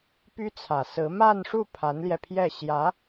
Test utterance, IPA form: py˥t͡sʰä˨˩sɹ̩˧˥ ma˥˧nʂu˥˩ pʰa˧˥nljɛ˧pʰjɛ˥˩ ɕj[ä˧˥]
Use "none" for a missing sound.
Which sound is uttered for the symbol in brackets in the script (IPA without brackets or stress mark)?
ä˧˥